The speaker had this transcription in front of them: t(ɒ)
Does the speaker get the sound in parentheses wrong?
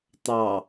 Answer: yes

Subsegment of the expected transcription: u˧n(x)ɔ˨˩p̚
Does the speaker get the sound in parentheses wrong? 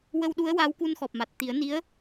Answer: no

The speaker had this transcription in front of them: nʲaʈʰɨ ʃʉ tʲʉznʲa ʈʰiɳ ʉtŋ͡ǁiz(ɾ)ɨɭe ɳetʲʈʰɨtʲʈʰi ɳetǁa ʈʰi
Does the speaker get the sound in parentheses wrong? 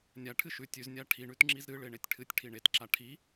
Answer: no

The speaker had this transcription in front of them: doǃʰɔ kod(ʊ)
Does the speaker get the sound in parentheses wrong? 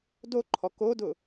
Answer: no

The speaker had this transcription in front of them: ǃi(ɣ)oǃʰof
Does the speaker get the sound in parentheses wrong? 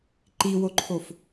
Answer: yes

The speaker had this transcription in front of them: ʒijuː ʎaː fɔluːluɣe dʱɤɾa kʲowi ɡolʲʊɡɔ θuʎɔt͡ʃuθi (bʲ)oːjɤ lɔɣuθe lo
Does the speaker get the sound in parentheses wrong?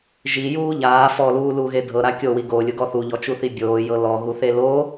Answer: no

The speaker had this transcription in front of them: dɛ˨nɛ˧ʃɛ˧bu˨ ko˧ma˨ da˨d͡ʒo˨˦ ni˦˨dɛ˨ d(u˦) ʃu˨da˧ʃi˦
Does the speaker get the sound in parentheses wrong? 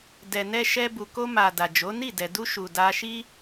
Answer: yes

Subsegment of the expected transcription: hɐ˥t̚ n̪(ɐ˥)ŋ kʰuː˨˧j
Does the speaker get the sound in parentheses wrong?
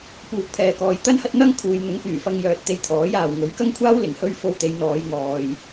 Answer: no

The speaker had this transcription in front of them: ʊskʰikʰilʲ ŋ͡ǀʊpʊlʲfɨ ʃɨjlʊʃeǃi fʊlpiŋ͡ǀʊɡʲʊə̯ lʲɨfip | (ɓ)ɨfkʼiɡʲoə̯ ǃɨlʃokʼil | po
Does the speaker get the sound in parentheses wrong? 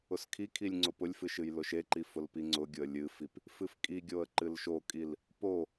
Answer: yes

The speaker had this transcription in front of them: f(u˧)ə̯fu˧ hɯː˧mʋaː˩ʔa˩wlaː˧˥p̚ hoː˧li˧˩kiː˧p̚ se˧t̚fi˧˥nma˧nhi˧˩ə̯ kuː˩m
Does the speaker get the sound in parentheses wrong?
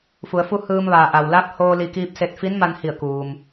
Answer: yes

